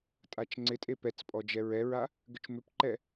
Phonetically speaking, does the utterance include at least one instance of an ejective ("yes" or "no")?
yes